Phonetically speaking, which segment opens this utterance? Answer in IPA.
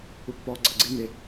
u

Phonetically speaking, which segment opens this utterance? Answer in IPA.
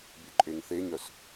bʲ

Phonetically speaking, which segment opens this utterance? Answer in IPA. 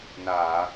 n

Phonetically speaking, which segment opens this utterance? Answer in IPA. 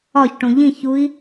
ɒ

